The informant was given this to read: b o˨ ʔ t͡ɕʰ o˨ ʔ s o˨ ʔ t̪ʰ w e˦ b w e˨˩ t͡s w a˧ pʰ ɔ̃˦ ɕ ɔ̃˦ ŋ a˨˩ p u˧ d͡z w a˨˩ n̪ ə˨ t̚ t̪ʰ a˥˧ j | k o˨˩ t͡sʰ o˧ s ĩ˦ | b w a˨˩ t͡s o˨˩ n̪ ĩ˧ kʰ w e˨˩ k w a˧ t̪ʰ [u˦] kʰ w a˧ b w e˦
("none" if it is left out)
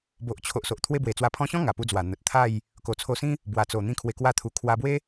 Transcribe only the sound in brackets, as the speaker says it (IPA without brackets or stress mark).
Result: u˨˩